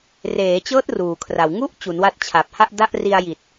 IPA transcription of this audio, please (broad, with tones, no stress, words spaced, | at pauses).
reː˩˦t͡ɕɤː˦˥t̚ ruː˩˦kʰra˨˩w ŋu˥˩ʔ t͡ɕu˩˦nwa˦˥t̚t͡ɕʰa˨˩p̚ ha˥˩ʔda˥˩ʔri˧a̯ ji˨˩t̚